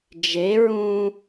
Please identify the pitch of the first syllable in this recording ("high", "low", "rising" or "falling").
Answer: rising